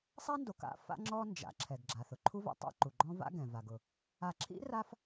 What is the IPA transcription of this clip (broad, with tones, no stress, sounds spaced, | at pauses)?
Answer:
sˤ a˥ n d o˨ k a̰˥ f a̰˦ ŋ͡ǁ ɔ˦ n d͡ʒ a̰˩ ǁʰ ɛ˩ ɡ ɡ͡ǁ a˩ θ ʊ˩ ǃʰ u˥ v a̰˦ tˤ a̰˥ ǃ u˩ ɡ͡ǃ ɔ̃˥ v a̰˦ ɡ ɛ̃˩ v a˩ ɡ ʊ˩ | a˨ ǁʰ ḭ˥ r a˦ f